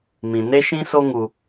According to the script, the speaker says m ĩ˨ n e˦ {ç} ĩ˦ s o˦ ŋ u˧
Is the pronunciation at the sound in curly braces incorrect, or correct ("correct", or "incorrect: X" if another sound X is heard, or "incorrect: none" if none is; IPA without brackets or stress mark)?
incorrect: ʃ